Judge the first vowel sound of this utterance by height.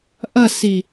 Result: low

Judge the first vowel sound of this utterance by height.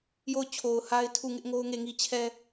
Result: mid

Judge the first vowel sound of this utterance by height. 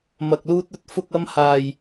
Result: low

